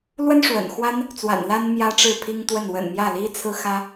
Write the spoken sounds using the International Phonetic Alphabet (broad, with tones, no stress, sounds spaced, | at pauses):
l w ə˥ n ʂ w ə̰˨˩ n x w a˥ n | t͡s w a̰˨˩ n l a˥ n m j ä˥ ʈ͡ʂ ɻ̩˥˩ pʰ i˥ ŋ t̪ w ə˥˩ n w ə̰˨˩ n m j ä˥˩ l i˥ t͡sʰ ɹ̩˥ x ä˥